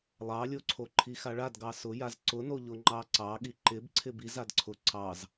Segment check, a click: present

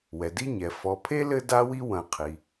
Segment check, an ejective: absent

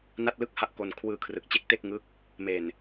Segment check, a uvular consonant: absent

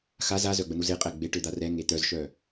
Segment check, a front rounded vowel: present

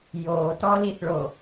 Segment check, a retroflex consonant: present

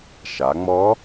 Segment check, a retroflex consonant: absent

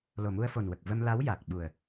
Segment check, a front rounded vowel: absent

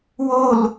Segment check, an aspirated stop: absent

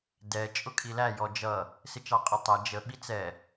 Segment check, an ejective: present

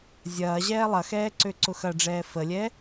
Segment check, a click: present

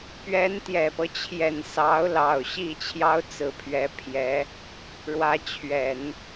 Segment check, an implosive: absent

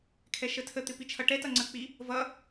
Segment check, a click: present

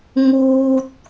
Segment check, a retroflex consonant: absent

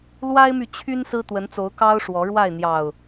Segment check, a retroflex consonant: present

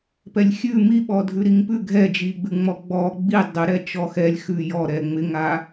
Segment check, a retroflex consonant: absent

